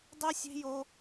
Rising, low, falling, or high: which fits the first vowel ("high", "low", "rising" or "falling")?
high